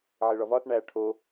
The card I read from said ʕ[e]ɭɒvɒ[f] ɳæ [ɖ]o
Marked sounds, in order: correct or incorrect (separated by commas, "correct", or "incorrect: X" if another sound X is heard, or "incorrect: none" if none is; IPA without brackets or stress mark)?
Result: correct, incorrect: θ, incorrect: ʈʰ